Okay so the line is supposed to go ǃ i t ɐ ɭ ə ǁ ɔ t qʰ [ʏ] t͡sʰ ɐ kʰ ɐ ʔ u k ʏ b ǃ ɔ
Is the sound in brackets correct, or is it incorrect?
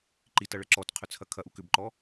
correct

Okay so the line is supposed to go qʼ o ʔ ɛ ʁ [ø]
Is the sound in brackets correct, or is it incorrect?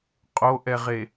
incorrect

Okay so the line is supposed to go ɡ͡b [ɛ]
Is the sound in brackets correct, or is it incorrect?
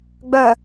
incorrect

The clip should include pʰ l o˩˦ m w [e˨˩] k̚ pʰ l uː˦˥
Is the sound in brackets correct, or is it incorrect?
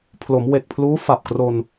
correct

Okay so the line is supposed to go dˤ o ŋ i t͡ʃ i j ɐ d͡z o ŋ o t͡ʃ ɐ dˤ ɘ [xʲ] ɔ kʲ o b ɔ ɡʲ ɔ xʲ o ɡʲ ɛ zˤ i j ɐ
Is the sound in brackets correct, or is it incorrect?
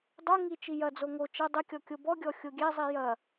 incorrect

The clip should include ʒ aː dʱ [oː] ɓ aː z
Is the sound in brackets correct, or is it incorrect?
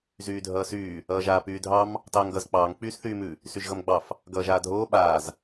correct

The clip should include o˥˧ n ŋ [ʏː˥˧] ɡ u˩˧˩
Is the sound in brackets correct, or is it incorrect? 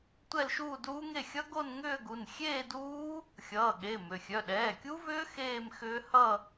correct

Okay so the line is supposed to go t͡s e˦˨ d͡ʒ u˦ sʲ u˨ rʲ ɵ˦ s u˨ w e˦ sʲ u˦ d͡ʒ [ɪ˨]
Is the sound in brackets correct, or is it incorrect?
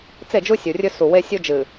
incorrect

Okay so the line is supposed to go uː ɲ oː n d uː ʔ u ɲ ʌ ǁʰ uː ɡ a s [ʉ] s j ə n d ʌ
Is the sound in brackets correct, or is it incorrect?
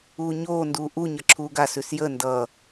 correct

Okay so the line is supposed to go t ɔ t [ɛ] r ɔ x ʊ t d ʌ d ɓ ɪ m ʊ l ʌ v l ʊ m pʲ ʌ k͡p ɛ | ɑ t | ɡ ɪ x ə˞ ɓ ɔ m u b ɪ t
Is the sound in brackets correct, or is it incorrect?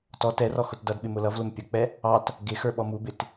correct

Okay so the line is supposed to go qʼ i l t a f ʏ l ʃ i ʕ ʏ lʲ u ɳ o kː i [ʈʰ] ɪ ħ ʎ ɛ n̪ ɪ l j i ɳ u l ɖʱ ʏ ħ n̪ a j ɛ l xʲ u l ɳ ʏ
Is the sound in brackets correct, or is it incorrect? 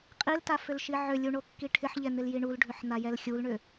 correct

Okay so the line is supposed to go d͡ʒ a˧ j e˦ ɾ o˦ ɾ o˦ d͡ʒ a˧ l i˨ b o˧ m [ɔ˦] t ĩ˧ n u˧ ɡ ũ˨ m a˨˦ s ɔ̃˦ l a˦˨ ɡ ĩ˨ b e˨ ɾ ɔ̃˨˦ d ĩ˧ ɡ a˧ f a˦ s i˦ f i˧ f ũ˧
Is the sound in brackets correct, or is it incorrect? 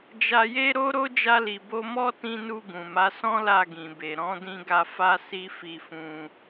correct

